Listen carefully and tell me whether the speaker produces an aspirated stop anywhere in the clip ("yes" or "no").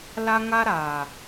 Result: no